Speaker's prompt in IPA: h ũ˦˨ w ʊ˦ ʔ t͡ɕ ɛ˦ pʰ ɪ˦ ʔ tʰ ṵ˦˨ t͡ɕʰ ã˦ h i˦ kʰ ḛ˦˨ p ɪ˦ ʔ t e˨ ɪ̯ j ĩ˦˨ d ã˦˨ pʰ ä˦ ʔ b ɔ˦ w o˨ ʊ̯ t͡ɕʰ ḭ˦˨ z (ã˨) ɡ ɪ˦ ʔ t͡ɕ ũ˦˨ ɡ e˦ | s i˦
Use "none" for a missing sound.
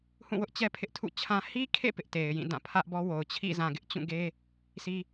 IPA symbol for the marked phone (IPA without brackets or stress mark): ã˨